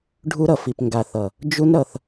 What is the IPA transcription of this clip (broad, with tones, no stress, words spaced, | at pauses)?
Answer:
ɖʱu˧ɾʌ˨fi˨p ŋɡa˨θʌ˨ | d͡ʒu˦nɾʌ˧θ